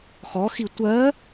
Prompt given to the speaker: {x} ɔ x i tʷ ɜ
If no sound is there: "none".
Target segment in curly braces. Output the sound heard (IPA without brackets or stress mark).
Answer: x